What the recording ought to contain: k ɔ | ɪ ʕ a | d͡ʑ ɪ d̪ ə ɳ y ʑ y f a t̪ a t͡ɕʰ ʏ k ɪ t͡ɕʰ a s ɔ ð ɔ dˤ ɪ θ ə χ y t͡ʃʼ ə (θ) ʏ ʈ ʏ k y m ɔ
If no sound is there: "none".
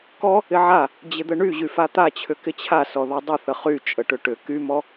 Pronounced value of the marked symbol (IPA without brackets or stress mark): ʈ